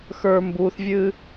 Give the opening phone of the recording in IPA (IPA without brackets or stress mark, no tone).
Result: x